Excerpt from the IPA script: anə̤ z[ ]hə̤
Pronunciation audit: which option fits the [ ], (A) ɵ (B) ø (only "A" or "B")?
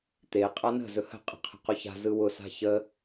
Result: A